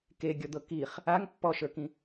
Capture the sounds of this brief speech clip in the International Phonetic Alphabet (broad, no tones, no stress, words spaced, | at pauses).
keɡʲɔd̪ɤ kiχ | aŋ pːɔʃə˞kĩ